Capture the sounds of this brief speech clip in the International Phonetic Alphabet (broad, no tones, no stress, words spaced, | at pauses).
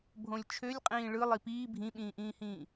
bʱõlʲt͡ʃʰølʲqʼĩː ɭɯ lˠipiː bʱĩɓĩːʔĩːhĩː